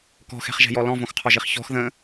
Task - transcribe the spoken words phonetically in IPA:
k ɔ̤ x ɛ̤ χ ʒ ɛ̤ j ɔ l ɔ̃ v õ x qʰ ɔ ʒ i χ ç ɔ̤ x ð ə̃

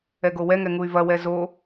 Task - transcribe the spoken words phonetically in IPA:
ɛ ɡ o w ɛ ŋ ɛ ŋ u y̯ v ɐ w ɛ z o

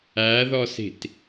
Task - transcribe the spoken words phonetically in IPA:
æ ð ɔ s i̤ t

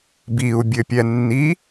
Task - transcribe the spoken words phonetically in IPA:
b i u̯ bʲ ɘ pʲ ɛ nː i

